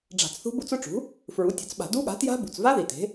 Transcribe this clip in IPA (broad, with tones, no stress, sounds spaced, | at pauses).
ɖ͡ʐ a̤˧˩˧ t͡s θ ṳ˦˥ b u˦˥ t͡s ʊ˦˥ ʈ͡ʂ ṳ˩˥ | f ɹ u˩˥ tʲ ʊ˩˥ t͡s ɓ a̤˧˩˧ d u˦˥ ɠ a̤˩˥ t j a̤˦˥ b ṳ˩ t͡s v a˦˥ ð i˩ t e̤˩˥